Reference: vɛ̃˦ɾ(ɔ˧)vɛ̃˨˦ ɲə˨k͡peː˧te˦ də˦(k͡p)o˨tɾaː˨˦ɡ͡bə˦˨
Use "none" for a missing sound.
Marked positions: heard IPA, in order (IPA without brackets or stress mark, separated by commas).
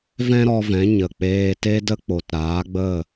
ɔ˧, k͡p